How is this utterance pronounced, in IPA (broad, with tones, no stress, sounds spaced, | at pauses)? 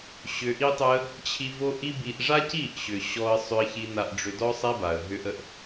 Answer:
ɕ ʏ˧ ʔ i˦ tˤ ʏ˦ ə̯ | t͡ɕʰ i˧ v o˦ ʔ i˦ b i˧ ʔ ʐ a˦ c i˦˨ ʔ ɕ ʏ˨ ɕ ɔ˧ ə̯ sˤ ʏ˧ ə̯ ç i˧ n a˧ ʔ ɖ͡ʐ ʏ˧ d ɔ˦ sˤ ɛ˦ b a˨ ə̯ ɦ ʏ˦ ʔ ə˦ ʔ